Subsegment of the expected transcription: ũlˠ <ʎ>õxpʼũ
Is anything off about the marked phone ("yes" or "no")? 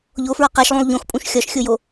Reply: no